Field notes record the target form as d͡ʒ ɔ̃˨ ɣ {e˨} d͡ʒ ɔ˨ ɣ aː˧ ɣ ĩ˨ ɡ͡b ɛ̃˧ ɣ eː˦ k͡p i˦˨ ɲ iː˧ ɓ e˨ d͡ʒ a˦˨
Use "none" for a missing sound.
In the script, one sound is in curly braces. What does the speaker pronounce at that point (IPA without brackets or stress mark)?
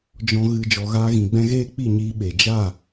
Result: ɨ˨